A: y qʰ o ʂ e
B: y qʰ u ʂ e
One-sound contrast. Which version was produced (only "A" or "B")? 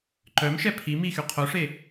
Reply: A